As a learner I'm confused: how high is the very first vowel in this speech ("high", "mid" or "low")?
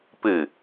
high